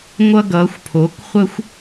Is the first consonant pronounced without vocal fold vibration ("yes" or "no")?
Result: no